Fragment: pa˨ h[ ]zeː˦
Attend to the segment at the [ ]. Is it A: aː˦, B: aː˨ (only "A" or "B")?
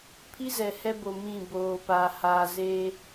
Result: B